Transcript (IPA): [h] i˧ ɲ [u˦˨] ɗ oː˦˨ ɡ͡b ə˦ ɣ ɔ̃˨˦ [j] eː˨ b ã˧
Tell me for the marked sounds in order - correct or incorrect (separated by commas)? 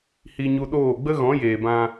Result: correct, incorrect, correct